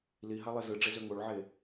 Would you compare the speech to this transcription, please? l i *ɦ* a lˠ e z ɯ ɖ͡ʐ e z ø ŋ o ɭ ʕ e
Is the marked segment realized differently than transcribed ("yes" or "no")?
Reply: no